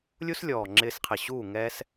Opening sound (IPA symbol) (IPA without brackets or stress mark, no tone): lʲ